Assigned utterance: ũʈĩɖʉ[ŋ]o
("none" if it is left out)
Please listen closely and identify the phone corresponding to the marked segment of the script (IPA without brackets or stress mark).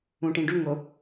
ŋ